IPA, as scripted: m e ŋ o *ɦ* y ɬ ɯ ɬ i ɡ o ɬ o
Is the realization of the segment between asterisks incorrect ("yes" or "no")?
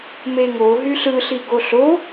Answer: no